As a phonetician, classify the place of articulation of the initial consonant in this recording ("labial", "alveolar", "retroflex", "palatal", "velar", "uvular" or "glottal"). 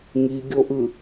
velar